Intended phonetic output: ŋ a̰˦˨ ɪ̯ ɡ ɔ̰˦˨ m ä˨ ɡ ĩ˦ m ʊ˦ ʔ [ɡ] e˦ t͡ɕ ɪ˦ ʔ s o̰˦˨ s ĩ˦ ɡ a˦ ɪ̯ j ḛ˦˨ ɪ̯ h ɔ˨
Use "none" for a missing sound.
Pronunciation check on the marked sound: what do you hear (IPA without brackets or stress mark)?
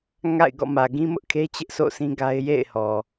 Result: kʰ